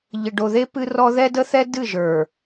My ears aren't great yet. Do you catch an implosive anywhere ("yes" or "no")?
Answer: no